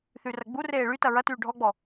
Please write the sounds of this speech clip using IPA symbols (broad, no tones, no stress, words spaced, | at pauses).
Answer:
θyrɐɡ͡bureː ɭytɐ ɹɐtyː ɖʱɔɡ͡bɔ